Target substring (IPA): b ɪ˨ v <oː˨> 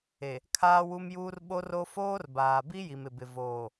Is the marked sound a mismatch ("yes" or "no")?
no